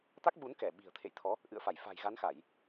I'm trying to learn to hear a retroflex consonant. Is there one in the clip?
no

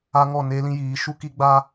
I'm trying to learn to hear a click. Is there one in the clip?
no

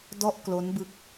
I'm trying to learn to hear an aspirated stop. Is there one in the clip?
no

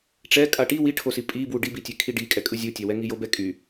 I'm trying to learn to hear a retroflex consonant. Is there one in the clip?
yes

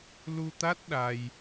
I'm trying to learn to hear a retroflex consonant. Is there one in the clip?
no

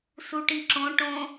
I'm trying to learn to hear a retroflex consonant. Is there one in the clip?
yes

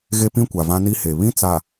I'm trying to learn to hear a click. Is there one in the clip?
no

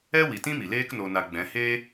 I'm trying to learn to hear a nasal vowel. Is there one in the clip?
yes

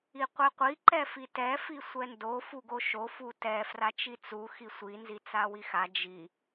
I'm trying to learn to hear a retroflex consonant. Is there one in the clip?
no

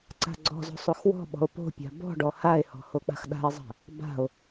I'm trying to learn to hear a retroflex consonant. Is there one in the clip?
yes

